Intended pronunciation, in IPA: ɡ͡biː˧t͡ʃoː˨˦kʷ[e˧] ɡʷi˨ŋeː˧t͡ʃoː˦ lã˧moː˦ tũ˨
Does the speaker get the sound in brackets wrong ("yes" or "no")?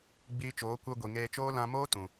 no